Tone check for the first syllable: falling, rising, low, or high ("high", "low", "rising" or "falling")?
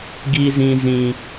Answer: high